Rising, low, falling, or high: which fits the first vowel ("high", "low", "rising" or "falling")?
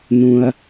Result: low